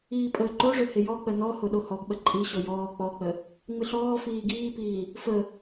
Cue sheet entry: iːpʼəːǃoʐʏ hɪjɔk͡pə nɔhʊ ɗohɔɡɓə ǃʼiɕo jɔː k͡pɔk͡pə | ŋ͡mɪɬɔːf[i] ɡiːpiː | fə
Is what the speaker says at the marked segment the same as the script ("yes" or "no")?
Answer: no